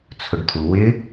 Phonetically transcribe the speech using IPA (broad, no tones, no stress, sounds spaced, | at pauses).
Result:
t͡sʰ ʊ ɖ t̪ʰ u w ɪ